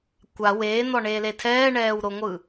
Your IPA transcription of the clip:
kʷ a w eː n̪ ɔ ɳ eː l e tʰ ɛː ɳ ɛː w ɾ o ŋʷ ɯ

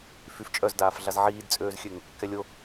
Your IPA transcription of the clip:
f y f t͡ʃʼ œ z d aː f ɮ a z ʕ iː d t͡sʼ øː z xʲ ø ŋ | k ɛ lʲ o

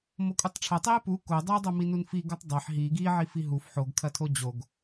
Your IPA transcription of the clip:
m o kʼ u tˤ ʈ͡ʂʰ ɐ tˤ i e̯ p u k o dˤ i e̯ dˤ o m i n u n f i ɡ u tˤ dˤ ɐ ħ ɦ i ɡ i ʕ i f i ɦ u f ħ o ɡ kʰ ɐ tʰ o d͡ʑ o ɡ

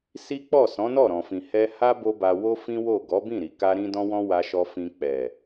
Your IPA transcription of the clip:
s i˦ k͡p ɔ˦˨ s ɔ̃˨˦ n ɔ˦˨ ɾ ɔ̃˨ f ĩ˨ h ɛ˧ h a˦ b o˦ b a˧ w o˦ f ĩ˦ w o˦˨ ɡ ɔ˨˦ b ĩ˦˨ ɾ i˨ k a˧ ɾ ĩ˧ d ɔ̃˦ w ɔ̃˦ w a˧ ʃ ɔ˧ f ĩ˧ k͡p ɛ˨

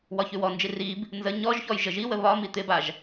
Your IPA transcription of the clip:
w ɒ ç ʉ w ɔ n d͡ʒ i r i b | n z ə ɲ ɔ ʒ ç ɔ j ʒ ə ʒ i w ə β ɒ m i t̪ ɪ b a ʒ

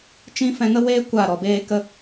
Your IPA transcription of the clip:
t͡ʃ ĩ˦ f ɛ̃˧ ŋ ə˦ w eː˦ kʷ a˦˨ ɾ ɔ˨ b eː˦ k ə˦

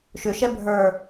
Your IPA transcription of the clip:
ʃ ʏ ʃ ɛ bʱ ə˞

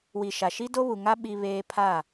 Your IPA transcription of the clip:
w i˨ ʃ a˨ ʃ i˦ d o˦ β u˨ ŋ a˦ ɓ i˦ β eː˦ pʰ a˦˨

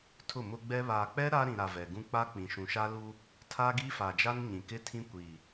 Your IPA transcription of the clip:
tʰ ʊ˦˨ m ʊ˦ ɡ͡b ɛ˦ β aː˨ k͡p ɛ˦ ɾ a˦ ɾ ĩ˨ ɾ a˨ v ɛ˨ ɡ ũ˦ k͡p a˦ k͡p ĩ˨ ʃ ũ˨ ʃ a˦ l u˦ | tʰ a˦ ɡ iː˦ f a˨ d͡ʒ a˦ n ɲ ĩ˨ k ɪ˦ tʰ ĩ˦ kʷ iː˨

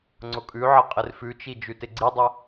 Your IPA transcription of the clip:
ŋ͡ǀ ʊ kʼ ʉ ʕ ə qʼ ɪ r f ʉ t͡ʃ i d͡ʒ ʉ t ɪ ɡ͡ǀ i dˤ ə

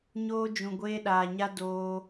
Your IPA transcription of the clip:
ɲ oː˦ d͡ʒ ũ˨ ɡʷ eː˦ ɗ aː˨ ɲ a˦ d oː˦

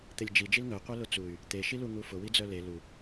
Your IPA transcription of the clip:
t̪ e lʲ d͡ʒ i d͡ʒ i l ŋ œ qʷ œ l ʊ t͡s u y̯ | t̪ e ʃ i l u ŋ u f ʊ w i d͡z œ l e l u

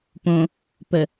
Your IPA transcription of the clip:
p õ | p ə

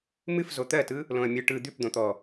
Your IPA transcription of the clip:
m ɨ f z o t̪ ɜ t ɯ | l õ ə̯ mʲ ɯ ʈ ɯ d̪ ʉ p d̪ õ t̪ ɔ

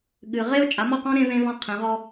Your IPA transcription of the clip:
ɠ ɨ˨ ʁ e˦ ʊ̯ t͡ʃʼ a˨˦ m ɔ˦˨ q ɔ̃˦ ɾ ẽ˦ β ẽ˦ β ɔ̃˦˨ qʰ ẽ˨˦ ʁ ɔ˦

